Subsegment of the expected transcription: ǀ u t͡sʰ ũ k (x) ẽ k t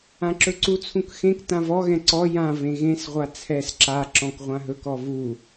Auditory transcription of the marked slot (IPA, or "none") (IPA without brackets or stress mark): x